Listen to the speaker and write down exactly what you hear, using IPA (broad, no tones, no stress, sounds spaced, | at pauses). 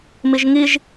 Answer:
m i ʒ ŋ i ʒ